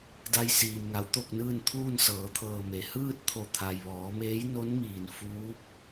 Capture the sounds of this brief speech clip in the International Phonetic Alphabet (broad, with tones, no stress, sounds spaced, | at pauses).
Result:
d a˧ j s iː˩ m ŋ a˩˧ w t̪ o˥˨ k̚ n ɯː˥˨ n t̪ʰ uː˥˨ n s ɤː˩˧ t̪ʰ ɤː˧˩ m e˩˧ h ɯː˥˨ t̚ t̪ʰ o˧˩ t̪ʰ a˩ j ʋ ɔː˩˧ m eː˧˥ j n o˧˥ n m iː˩ n f uː˧˥ p̚